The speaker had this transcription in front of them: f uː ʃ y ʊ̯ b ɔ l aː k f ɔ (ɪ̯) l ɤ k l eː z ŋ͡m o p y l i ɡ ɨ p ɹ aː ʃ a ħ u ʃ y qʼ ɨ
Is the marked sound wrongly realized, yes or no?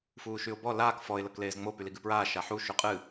no